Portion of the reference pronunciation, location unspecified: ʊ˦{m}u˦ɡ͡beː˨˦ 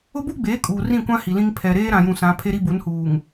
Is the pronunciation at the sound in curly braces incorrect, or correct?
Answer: incorrect: b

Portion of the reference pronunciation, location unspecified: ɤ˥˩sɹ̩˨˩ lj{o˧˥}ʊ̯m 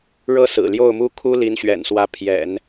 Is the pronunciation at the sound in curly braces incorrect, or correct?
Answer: incorrect: o˥˩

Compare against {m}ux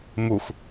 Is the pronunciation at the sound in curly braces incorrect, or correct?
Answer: correct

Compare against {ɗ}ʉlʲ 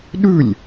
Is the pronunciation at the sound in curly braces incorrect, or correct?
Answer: correct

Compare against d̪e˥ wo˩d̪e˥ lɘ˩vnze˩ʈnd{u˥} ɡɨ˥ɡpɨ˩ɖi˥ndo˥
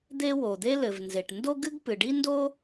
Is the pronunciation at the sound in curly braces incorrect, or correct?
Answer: incorrect: o˥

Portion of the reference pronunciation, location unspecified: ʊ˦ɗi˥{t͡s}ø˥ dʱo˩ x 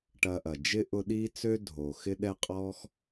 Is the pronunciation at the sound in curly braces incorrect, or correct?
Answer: correct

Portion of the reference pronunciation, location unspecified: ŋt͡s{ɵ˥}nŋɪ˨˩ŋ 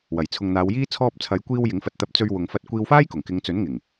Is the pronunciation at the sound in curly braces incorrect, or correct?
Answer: incorrect: ɵ˨˥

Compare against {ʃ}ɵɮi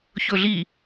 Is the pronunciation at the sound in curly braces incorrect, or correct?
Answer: incorrect: ç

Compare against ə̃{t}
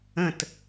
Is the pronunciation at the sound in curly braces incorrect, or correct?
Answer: correct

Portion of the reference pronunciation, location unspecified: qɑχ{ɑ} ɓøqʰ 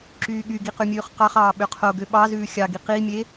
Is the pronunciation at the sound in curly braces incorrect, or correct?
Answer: incorrect: ɑː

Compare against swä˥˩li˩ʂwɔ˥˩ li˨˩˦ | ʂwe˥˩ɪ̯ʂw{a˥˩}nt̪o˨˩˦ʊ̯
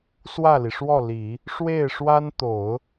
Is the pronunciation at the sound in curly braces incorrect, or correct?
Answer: incorrect: a˥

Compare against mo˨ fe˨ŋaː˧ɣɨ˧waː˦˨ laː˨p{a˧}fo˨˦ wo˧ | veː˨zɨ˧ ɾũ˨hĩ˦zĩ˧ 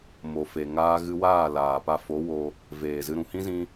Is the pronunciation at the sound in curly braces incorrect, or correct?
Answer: correct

